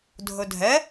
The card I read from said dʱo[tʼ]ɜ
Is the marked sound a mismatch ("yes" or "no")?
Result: yes